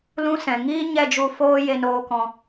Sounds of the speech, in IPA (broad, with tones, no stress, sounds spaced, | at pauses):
l ũ˦ s ɛ̃˨ ŋ iː˦ ɲ ɛ˦˨ d͡ʒ u˧ f oː˦ j e˧ n oː˧ k ɔ̃˨